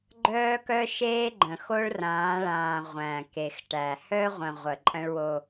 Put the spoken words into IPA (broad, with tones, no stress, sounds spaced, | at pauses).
ɡ͡ǃ œː˦ k œ˦ ʃ eː˦ ɡ͡ǃ ə̃˨ x o˦ ɭ r ãː˨˦ ɭ ãː˨ ʁʷ æ̃˨ k e˨ x ʈ æ˨ h œ˦ ʁʷ ə̃˨ ʁʷ ə˨ ǃʼ ə̃˦ ɭ w o˦